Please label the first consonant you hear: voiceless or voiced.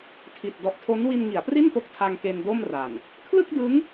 voiceless